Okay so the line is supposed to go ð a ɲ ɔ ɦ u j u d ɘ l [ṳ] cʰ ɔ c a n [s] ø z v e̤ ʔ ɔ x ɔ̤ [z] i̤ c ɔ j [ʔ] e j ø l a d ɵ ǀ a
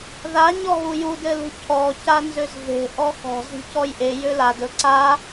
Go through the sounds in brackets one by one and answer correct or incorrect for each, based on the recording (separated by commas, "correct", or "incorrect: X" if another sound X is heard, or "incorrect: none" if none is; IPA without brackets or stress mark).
correct, incorrect: z, correct, correct